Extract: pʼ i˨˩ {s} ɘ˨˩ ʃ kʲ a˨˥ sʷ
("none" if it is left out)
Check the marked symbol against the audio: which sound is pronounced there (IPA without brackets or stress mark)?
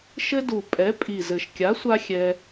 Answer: z